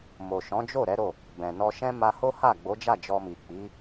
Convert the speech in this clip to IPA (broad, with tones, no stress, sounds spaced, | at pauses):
m o˨ ʃ ɔ̃˨˦ d͡ʒ o˦˨ ɾ ɛ˨˦ ɾ o˦˨ | b ɛ̃˨ n ɔ˧ ʃ ɛ̃˦ m a˧ h o˦ h a˦˨ ɡ͡b o˨˦ d͡ʒ a˦˨ d͡ʒ ɔ˧ m i˨ k͡p i˨˦